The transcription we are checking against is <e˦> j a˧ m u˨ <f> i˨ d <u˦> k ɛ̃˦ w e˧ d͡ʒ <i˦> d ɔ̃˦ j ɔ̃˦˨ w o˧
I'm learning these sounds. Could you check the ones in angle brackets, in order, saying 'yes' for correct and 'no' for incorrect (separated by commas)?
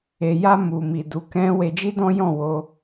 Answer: no, no, no, yes